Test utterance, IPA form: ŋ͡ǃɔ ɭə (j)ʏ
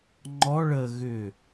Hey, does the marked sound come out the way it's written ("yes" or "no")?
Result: no